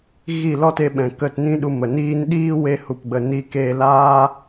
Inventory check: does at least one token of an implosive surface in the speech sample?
yes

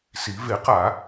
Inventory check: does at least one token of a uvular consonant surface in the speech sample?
yes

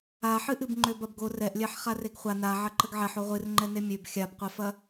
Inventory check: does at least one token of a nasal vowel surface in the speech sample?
no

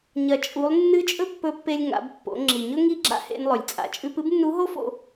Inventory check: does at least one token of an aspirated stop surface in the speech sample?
no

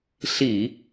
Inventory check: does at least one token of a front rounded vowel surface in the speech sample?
no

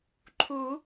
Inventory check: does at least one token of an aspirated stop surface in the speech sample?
yes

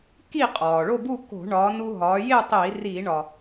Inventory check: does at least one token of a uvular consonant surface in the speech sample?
yes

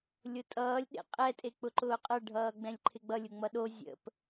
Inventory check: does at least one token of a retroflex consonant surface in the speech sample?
yes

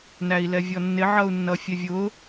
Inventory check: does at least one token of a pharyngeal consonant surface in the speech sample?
yes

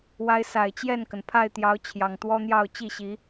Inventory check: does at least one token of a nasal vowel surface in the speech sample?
no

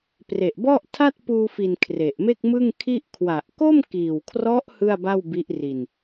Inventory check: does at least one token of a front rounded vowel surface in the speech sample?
no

